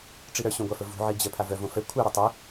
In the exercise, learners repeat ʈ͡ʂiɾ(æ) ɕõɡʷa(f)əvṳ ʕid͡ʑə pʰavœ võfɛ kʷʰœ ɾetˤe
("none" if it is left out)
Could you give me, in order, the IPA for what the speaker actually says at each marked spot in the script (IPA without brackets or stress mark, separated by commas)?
œ, f